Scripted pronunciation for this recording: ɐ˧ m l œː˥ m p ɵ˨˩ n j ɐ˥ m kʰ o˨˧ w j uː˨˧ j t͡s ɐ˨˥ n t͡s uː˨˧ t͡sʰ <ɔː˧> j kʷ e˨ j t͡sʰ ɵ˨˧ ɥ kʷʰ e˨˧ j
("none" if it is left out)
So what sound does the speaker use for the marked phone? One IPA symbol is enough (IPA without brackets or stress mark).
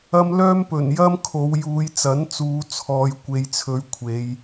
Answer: ɔː˨